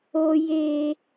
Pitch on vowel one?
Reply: high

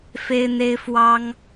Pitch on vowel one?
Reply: high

